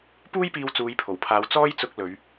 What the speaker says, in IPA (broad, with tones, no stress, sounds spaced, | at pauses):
p uː˥ j p iː˧ w t͡s uː˨˧ j pʰ o˨˩ w pʰ aː˨˧ w t͡s ɔː˥ j t͡s ʊ˧ k̚ l ɵ˨˧ ɥ